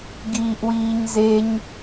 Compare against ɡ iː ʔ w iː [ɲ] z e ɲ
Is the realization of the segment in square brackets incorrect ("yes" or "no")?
no